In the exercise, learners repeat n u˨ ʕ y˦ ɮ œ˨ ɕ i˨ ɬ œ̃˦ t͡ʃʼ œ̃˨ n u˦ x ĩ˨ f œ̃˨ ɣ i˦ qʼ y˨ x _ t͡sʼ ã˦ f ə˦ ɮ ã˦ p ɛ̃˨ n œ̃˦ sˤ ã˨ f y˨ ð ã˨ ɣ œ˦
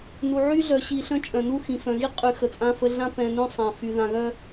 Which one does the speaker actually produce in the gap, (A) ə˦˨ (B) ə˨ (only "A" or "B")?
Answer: B